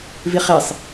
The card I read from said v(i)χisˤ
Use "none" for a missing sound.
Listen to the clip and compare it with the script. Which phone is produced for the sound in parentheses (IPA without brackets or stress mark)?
i